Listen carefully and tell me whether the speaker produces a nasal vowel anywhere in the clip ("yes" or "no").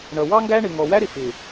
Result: no